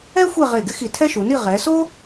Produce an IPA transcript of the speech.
ɛ˥ xʷ e˥˧ ʁ e˧˩ ɡ ɪ˥ x i˧˩ tʰ ɛ˥ ʃ u˩˧ n i˥˧ ʁ ɛ˩˧ s o˥

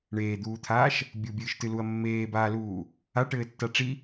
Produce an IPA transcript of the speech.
ɳ eː d̪ uː t̪ʰ aː ʃ | bʲ u bʲ ɨː ʃ t ɨ l u ɐ̯ mː eː b aː l uː | a ʈ ɘː tː a ʈ͡ʂ i

